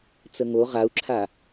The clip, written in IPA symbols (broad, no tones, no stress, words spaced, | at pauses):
t͡səŋo ʁau̯ǁʰa